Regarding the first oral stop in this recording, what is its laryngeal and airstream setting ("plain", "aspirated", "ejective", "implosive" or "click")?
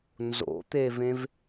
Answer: plain